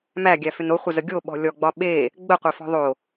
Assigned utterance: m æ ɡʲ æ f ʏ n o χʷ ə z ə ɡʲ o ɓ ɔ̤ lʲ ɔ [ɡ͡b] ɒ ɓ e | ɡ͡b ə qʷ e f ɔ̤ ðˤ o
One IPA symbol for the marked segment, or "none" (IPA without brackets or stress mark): ɡ͡b